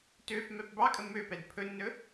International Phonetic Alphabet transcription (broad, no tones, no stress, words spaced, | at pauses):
tøf mɛpbɑkʼə møpɛd pʰɵnːɵ